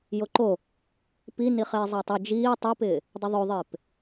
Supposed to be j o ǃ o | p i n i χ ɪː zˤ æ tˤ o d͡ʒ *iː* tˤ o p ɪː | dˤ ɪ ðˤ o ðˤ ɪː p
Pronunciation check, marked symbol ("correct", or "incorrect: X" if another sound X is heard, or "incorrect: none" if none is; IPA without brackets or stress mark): correct